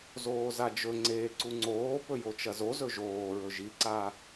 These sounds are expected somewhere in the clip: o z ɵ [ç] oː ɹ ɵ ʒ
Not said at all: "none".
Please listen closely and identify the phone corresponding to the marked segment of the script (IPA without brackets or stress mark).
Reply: ʒ